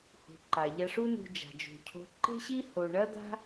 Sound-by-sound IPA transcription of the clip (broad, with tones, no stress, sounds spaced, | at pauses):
h ṳ˩ ǃ a˩ ʎ a˧ ʂ u˥ n ṳ˧ d͡ʒ a̤˩ d͡ʒ ṳ˩ cʰ o̤˧ ǃ e̤˥ ɕ i˥ h o˧ ɳ ɐ˥ d̪ a̤˥